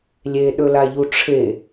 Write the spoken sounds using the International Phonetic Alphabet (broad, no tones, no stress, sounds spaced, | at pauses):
lʲ e ɗ ɵ l a ʎ u ʈ͡ʂʰ e